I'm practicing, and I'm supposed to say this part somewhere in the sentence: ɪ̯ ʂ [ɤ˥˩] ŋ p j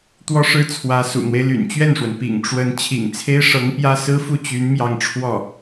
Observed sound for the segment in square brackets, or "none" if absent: ɤ˧˥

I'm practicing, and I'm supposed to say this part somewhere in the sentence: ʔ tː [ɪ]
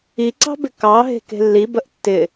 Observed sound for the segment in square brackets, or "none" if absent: ɪ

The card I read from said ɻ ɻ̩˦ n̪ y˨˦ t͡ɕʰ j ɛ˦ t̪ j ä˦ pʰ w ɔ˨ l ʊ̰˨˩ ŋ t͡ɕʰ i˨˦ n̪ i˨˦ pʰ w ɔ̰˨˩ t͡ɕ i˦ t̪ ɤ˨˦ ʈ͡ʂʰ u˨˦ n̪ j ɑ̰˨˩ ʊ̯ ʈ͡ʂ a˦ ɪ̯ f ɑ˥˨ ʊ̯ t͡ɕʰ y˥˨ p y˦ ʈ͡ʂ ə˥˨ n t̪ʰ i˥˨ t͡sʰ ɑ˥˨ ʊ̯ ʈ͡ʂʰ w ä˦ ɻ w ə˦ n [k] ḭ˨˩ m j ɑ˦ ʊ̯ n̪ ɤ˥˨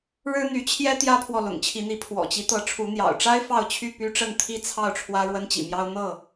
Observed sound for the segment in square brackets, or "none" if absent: t͡ɕ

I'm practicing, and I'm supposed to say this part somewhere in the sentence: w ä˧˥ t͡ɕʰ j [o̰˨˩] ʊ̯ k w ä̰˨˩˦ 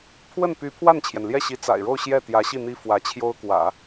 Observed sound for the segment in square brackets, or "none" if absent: o˥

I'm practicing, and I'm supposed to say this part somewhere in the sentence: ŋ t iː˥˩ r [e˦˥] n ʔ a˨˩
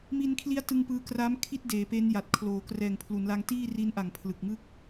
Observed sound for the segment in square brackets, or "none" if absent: i˦˥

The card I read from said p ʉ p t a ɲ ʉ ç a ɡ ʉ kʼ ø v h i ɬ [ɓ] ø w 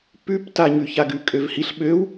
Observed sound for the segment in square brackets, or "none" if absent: ɓ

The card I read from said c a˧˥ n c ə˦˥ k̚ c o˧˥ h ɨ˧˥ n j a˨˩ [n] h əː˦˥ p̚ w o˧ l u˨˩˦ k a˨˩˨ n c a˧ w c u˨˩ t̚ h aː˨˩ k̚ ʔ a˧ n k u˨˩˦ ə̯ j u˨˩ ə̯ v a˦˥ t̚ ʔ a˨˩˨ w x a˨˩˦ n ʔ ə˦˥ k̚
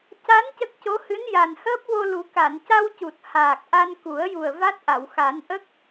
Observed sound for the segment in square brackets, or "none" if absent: n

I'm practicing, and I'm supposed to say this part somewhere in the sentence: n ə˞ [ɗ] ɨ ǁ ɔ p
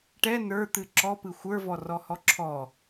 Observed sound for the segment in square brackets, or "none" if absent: t̪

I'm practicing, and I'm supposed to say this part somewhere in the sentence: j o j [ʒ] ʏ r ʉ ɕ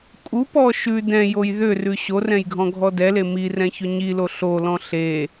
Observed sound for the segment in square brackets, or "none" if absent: ð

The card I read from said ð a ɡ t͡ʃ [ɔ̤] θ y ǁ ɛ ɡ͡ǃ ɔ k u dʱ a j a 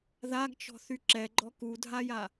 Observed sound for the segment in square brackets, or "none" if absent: ɔ̤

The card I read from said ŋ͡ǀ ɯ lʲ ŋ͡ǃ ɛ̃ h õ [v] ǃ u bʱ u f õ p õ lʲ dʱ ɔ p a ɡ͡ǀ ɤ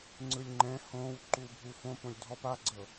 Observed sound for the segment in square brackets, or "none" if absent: w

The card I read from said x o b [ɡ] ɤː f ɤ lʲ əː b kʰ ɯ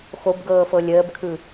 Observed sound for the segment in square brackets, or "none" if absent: ɡ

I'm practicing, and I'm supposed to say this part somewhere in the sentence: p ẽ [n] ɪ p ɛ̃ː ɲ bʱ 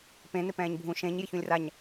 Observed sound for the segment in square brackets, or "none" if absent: n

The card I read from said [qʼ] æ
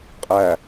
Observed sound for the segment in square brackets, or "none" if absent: qʼ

